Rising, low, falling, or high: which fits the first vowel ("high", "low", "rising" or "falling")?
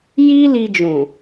high